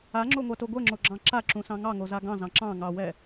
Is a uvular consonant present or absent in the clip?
absent